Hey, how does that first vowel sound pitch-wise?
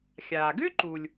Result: low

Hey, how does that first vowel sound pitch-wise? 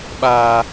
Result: high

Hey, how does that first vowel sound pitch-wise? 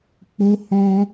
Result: high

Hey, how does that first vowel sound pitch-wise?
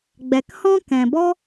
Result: low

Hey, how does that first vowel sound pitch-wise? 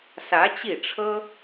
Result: rising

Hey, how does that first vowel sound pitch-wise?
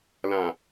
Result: low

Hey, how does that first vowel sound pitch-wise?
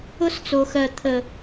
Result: high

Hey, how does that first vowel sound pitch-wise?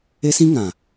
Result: high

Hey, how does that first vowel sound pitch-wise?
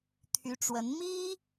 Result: rising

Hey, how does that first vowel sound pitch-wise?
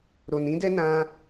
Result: low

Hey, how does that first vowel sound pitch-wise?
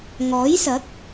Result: rising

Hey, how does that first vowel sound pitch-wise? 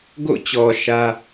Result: falling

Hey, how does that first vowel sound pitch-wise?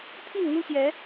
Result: falling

